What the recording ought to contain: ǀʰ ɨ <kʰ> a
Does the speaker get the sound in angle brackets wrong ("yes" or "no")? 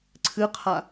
yes